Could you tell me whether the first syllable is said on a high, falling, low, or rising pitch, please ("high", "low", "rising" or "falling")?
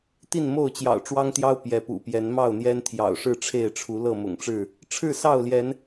falling